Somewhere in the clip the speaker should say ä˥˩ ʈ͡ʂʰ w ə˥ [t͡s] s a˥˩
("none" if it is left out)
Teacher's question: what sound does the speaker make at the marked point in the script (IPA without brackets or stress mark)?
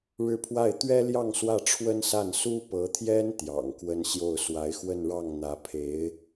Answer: n